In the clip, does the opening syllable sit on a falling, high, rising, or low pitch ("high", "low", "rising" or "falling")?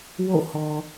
falling